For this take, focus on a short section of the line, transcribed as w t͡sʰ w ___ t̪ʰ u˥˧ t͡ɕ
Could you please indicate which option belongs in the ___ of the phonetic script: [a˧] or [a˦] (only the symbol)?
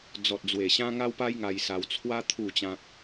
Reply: a˦